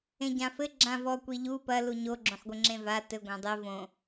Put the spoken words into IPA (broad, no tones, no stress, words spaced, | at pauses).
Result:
ẽɟãfɘ ɡ͡ǁãvɔ kʷiʎu pɐ luɲo ɡ͡ǁõħɡʷɘŋ͡ǁẽva tɘ ɡʷãdˤe võ